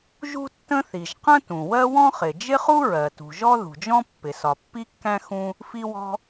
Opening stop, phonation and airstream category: plain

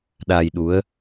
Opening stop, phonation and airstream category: implosive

